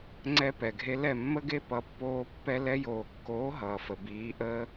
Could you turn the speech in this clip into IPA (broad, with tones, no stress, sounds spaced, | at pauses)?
ŋ͡ǀ ɛ˦ p ɛ˨ ɡʱ e˦ l ɛ˦˨ mː ə˦ ɡ e˦ p ʌ˧ pː oː˦ pː ɛ˦ l ɛ˧ j oː˨ kː oː˨˦ ɦ ʌː˨ f ə˨ b iː˨˦ ʔ əː˦